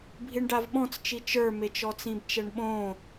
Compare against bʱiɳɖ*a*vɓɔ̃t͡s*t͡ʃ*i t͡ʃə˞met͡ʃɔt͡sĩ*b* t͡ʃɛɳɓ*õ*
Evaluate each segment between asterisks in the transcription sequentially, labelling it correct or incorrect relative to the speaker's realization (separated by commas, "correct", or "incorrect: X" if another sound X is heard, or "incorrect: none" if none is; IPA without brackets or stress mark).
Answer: correct, correct, correct, correct